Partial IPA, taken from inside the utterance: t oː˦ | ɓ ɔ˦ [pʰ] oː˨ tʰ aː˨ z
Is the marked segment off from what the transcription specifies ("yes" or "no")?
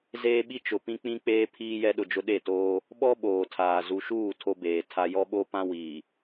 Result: yes